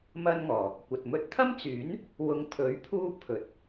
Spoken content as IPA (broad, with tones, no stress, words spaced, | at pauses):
mɐ˥nŋɔː˨˩ | kʷɐ˨t̚ mɵ˧t̚t̪ʰɐ˥mt͡syː˨˥n | wʊ˧ŋ t̪ʰɵ˨˥ɥpʰuː˥pʰɵ˨˥t̚